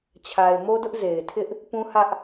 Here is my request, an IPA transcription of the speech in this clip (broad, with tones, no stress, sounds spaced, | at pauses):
t͡ɕʰ a˨ ɪ̯ m o˦ d ʊ˦ ʔ z e˨ ɪ̯ tʰ ɪ˦ ʔ | p ũ˦ h ä˦ ʔ